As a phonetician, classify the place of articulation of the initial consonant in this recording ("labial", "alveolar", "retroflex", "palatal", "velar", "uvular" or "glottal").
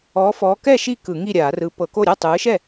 labial